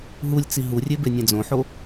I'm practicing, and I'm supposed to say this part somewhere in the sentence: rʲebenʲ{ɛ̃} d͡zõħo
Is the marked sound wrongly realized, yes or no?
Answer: yes